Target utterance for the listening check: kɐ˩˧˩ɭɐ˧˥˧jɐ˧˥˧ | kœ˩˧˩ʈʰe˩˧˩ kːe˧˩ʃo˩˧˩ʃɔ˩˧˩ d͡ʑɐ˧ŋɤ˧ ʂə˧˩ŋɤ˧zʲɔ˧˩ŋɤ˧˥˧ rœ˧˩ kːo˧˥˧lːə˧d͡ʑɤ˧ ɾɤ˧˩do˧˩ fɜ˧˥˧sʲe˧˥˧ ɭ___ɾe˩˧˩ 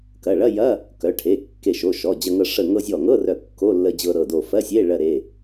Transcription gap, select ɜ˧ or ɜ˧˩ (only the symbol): ɜ˧